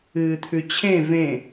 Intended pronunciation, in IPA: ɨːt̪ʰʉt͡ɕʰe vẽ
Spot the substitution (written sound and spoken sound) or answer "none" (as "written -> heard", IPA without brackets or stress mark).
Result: e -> ẽ